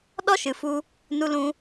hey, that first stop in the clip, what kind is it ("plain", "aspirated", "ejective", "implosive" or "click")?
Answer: implosive